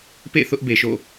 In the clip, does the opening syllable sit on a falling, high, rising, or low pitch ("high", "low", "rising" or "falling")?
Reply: falling